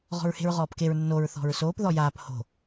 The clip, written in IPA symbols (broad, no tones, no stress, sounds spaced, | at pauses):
ʁ ɔ̤ ɹ h e̤ ɹ ʁ ɔː p k e ɹ nː o ɹ θ ɔ̤ ɹ s oː p ð ɔ j aː p h o̤